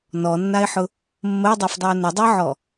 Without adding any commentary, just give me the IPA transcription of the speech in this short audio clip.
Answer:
nɔnːaɪ̯ħʊ | mːəʊ̯dˤə˞fdˤə˞ʊ̯ nədˤə˞ʕɔ

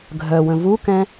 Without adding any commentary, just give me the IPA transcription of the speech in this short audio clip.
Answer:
ɡʱœwə̃ vukɛ̃

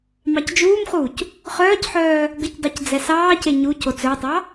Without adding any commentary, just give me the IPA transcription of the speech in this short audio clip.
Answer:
mɑcd͡ʒuːmχuːc | χœːcħœː | ɡəcdˤuc d͡zɛsɑːce ɲu cʰot͡sœtˤɑ

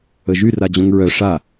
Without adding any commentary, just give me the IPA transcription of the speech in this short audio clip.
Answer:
əʒy rad͡ʑõŋɹœ ʂa

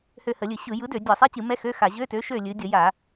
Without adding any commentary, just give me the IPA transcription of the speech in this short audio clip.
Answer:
hø˦˨hə˧˩˧lʲɨ˧˩˧ɕɯ˧˩˧ jɯ˨˥dø˧˩˧ dʲɛ˧˩˧sˤɛ˧˥˧t͡ɕɨ˧˩˧ mɛ˧˥˧xø˧˥˧xa˧˩˧ ʑø˧˥˧tø˨˥ʃø˦˨ lʲɨ˨˥ dʲə˧˩˧ja˧˩˧

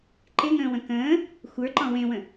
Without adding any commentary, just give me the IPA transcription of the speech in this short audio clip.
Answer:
ǃeŋə̃ːwə̃ kə̃ː | xʷə˞ǃɔ̃ wẽwə̃

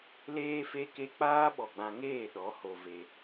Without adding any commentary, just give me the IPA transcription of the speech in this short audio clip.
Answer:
leː˦fe˦ke˦ k͡paː˦ ɓɔ˨ɡ͡bã˧ŋeː˦˨ ɗɔ˨˦ho˧ve˧

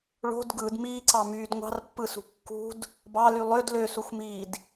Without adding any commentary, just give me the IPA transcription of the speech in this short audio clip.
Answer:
ɭo̤d ɡɯdmiːǀɑmyːd ŋʷɑ̤rpːɯsṳ kːṳd | bɑly lˠød løsuxʷmiːd

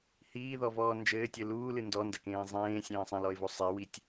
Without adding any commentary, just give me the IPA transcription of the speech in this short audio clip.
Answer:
hiːðɔvɔː nd͡ʒɘːtʲɘ luːlɨ ndɔndɐkẽː zˤẽːsʲẽː sˤɐ̃lɔɪ̯vo sˤewitʲ

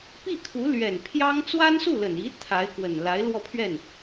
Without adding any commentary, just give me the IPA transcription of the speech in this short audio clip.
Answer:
pi˥˩kʰu˧˥lɥɛ˨˩npʰjɑ˥ŋ t͡swa˥nsu˥˩lə˨˩ni˧˥ t̪ʰa˧˥ɪ̯kwə˨˩n la˧˥ɪ̯lwɔ˥˧pʰɥɛ˥˩n

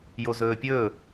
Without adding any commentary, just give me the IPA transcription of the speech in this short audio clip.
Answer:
jozɵːpʲɵː

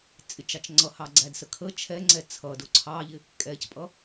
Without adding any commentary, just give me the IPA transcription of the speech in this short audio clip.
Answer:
t͡sʼɪt͡ʃɑt͡ʃ ŋ͡ǀʌhɑɡ͡ǀædsə kʰə t͡ʃʰɛŋ͡ǀɛ t͡sʰʌdʊ ǀʰɑʎɪ | kʼɛcpʼʌ

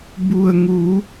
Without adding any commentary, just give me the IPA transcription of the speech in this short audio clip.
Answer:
bu˧˩ə̯ŋu˩˧

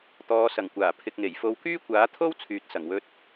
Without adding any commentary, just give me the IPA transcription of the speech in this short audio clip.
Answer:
t̪ɔː˨˧sɐ˨˩ŋkʷaː˨˩ pʰɪ˨k̚ŋe˨˩jfo˧w kyː˥kʷaː˨˥t̪ʰo˥w t͡sʰyː˨t̚sɐ˨˩ŋwɵ˧t̚

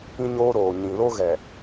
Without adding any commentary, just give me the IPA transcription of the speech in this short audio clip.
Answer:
ĩ˦ɲoː˦ɾoː˨ ɲĩ˨lo˦ ɣɛ˨

